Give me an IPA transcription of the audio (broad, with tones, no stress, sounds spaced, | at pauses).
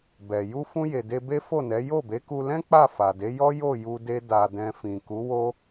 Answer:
b ɛ˨ j u˧ f ũ˧ j e˨ d e˧ b e˦ f o˦˨ n ɛ˨˦ j o˦˨ b e˨˦ k u˧ l ɛ̃˦ k͡p a˦˨ f a˨ d e˨˦ j ɔ˦ j o˦˨ j u˧ d e˧ d a˨ d ɛ̃˨ f ĩ˨ k u˨˦ w o˦